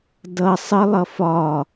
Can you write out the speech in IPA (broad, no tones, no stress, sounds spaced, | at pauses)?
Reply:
d ʌ sˤ ə lˠ ʌ f ɒ